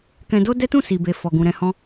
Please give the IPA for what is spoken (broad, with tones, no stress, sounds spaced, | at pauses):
k ɛ̃˧ d o˦ d ɛ˦ t ũ˦˨ s i˨ b e˨ f ɔ˨ ɡ ũ˨ ɾ ɛ̃˧ h ɔ̃˦